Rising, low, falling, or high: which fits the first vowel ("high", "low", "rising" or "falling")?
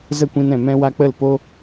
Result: falling